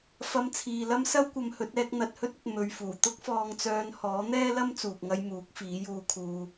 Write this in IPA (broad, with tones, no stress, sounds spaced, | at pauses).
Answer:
f ɐ˧ m t͡sʰ iː˨ l ɐ˥ m s ɐ˥ w kʷ ɐ˨˧ m h ɵ˨˥ t̚ ɛː˧ k̚ n̪ ɐ˨ t̚ h ɵ˥ t̚ ɐ˨ t̚ m ɵ˨˧ ɥ f uː˨˩ t̪ ʊ˥ k̚ f ɔː˧ ŋ t͡s œː˧ n h ɔː˨˥ n̪ ɛː˥ l ɐ˥ m t͡s uː˨ p̚ ŋ ɐ˧ j m uː˨˥ k̚ f iː˨˥ j uː˧ kʰ uː˧